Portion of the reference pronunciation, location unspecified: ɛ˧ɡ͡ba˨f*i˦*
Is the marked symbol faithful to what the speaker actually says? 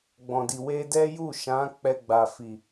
no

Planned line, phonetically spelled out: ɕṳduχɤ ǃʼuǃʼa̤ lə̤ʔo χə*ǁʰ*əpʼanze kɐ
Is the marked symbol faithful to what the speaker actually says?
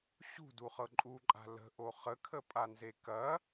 no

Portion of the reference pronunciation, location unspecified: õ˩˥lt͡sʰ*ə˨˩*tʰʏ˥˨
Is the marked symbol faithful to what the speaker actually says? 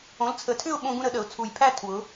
yes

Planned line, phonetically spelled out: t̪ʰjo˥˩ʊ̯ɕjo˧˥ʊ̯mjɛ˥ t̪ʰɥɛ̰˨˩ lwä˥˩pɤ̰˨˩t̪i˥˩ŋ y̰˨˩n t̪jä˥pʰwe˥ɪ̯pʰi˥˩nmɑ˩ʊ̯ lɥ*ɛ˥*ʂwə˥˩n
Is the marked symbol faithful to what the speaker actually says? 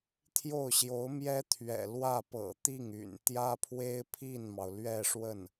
no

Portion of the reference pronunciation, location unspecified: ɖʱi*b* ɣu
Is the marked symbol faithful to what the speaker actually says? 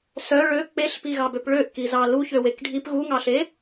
no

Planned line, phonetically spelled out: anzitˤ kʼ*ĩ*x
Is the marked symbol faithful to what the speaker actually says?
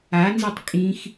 yes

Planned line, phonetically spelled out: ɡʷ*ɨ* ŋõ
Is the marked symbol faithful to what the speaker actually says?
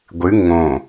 yes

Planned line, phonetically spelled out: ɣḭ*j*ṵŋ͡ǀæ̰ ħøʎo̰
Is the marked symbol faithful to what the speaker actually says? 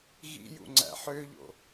yes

